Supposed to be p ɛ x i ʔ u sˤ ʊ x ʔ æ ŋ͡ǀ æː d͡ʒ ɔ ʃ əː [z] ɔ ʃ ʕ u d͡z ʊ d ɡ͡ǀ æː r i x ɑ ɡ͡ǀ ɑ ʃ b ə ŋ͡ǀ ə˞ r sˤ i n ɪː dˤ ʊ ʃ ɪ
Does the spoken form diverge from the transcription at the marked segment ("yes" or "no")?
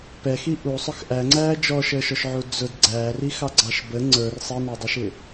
yes